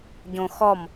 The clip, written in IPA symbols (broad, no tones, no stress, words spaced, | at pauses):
ɟõxɔm